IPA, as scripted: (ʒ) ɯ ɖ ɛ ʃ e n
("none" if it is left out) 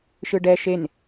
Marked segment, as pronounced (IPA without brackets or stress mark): ʃ